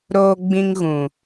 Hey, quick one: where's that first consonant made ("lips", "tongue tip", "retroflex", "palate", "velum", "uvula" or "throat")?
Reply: tongue tip